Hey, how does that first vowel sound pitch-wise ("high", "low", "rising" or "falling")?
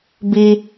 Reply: high